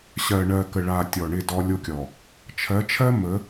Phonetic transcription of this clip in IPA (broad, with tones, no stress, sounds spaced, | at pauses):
ɕ ɜ˨ ɳ ɜ˨ k ə˨ ɭ a˨ tʲ ɔ˨ ɳ ɪ˦˨ d ɔ˦ lʲ o˦ kʲ ɔ˨ | t͡ʃʰ ɜ˨˦ t͡ʃʰ ɜ˦ m ə˨˦